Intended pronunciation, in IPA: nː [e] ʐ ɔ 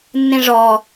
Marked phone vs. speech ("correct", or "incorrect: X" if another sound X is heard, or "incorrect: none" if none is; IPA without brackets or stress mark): incorrect: ẽ